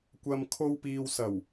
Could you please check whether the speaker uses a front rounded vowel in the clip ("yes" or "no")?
no